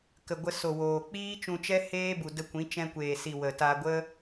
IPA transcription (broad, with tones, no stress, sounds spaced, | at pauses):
k ə˨ ɡʷ ə˧ s o˨ w oː˨ k͡p iː˦ t͡ʃ ũ˧ t͡ʃ ɛ˦ h eː˦ b u˨ d ə˧ kʷ ĩ˨˦ t͡ʃ ɛ̃˧ kʷ eː˨ s i˨ w ə˨ t a˧ ɡʷ ə˦